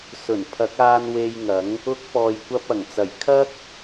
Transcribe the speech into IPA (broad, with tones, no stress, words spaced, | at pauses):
sɵ˨˩npʰɐ˨˥k̚aː˧n we˧jŋɐ˨˥ŋ | ʊ˧k̚pɔː˨jkʷɐ˧p̚ ɐ˨˩ŋt͡sɐ˨˩jkʰɐ˥k̚